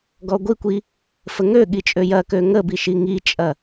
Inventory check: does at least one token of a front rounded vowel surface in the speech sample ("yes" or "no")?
yes